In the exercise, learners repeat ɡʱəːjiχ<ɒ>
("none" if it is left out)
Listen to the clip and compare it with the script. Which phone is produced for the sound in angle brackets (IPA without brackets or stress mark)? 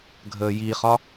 ɒ